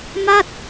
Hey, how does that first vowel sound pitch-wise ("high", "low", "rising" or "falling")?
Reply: falling